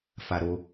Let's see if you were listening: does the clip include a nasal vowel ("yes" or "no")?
no